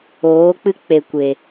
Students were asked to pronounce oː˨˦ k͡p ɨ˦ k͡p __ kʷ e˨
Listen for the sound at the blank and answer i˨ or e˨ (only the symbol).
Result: e˨